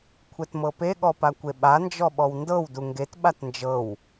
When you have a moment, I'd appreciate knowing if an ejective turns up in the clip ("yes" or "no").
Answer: no